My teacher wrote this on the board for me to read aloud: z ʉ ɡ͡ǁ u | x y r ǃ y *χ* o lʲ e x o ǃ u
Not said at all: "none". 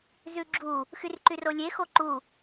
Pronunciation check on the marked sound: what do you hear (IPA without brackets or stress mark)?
r